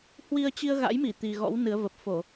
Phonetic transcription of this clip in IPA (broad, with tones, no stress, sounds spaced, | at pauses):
h w i˧ ə̯ t͡ɕ i˧ ə̯ ɣ a̰˧˥ j m i˧˩ t̪ i˨˩ ɣ ɔ̰˧˥ w n ɨ˨˦ ə̯ v ə˨˩ p̚ f o˧˩˨